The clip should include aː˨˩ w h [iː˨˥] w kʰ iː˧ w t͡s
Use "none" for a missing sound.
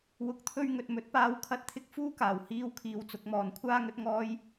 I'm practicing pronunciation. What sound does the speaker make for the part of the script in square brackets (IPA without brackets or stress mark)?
iː˥